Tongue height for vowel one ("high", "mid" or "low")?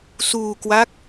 high